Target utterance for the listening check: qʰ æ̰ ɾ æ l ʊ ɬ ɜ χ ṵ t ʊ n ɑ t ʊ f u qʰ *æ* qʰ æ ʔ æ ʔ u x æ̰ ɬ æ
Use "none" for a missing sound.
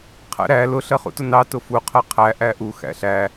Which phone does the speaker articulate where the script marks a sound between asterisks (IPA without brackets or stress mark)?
ɜ